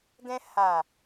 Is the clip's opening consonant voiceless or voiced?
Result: voiced